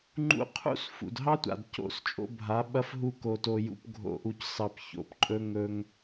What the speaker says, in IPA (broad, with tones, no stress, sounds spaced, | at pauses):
ŋ͡ǃ ṵ˧ qʰ ṵ˦ s f ṵ˨ d ɦ ɑ˦ tʷ a̰˨ d c o̰˦˨ s t͡ʃʼ o̰˧ bʱ a˨˦ ɓ ɐ˦ f ɦ u˦ k o˧ t o˧ j ṵ˧ p ɡʱ o̰˧ ʔ u˧ c s ɑ˧ p ç o̰˧ p ǃʼ ɵ˦ ŋ ɵ˦ ŋ